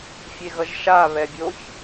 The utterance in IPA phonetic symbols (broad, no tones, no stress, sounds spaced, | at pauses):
fʲ e ɣ ʌ ʒ ʃ a β ɛ bʲ o ç